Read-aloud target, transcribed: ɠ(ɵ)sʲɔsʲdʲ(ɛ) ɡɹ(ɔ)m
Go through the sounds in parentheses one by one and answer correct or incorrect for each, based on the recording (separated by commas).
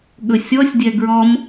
correct, correct, correct